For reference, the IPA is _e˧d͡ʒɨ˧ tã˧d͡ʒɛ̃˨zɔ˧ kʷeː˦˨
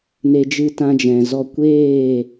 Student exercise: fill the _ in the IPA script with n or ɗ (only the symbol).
n